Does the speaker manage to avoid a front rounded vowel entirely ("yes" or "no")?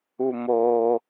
yes